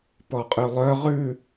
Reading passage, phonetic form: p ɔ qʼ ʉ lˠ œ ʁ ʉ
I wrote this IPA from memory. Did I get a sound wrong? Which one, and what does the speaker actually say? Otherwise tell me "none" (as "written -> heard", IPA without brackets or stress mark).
none